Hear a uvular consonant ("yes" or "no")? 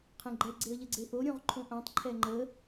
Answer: yes